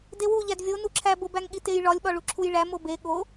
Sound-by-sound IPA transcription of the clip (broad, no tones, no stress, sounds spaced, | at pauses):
d e w u ʎ æ d vʲ o n u ǁʰ æ b o b æ ŋ ɠ i t e j ɭ ɒ lʲ ɓ ɒ ɭ u ǁʰ u j ɭ æ m o b e ɠ o